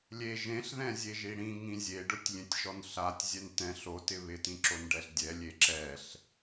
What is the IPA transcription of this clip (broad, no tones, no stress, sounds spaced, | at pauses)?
lʲ e ʒ ẽ ɬ ð ɛ̃ zʲ e ʒ i ɽ ĩ ŋ ĩ zʲ e ɖ ʊ tʲ lʲ ẽ tʲ ʃ ɔ n ɬ a tʲ zʲ ɛ n t ɛ̃ ɬ o t ɪ β ɪ t ĩ ǁ o n ɖ ɛ ɬ dʲ ɛ lʲ e ǁ ɛ ɬ